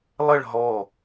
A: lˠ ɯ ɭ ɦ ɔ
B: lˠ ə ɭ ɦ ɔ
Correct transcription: B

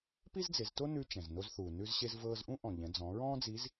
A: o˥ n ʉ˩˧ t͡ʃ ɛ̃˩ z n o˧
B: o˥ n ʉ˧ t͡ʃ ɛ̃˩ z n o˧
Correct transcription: B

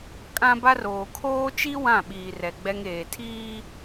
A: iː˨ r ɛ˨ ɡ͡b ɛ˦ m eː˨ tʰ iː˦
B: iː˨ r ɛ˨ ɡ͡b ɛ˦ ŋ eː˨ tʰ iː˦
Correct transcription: B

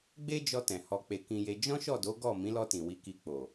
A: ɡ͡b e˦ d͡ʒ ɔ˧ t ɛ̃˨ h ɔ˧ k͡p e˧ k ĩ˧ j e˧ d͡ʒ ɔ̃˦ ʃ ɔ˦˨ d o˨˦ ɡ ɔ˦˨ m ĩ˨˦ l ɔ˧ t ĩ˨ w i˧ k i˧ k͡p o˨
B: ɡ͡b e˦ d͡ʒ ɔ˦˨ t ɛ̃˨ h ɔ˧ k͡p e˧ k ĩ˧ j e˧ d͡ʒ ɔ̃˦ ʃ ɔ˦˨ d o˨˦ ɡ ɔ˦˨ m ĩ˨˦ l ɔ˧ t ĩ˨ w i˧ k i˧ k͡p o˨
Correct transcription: A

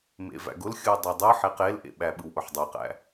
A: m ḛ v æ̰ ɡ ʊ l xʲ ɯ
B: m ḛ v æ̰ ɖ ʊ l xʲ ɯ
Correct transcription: A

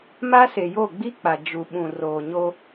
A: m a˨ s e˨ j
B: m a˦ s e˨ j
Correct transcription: B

